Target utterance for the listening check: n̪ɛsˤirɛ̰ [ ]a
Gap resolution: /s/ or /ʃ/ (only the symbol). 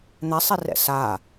s